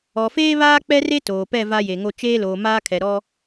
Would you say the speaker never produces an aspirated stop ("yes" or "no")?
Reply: no